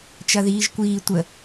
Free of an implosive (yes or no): yes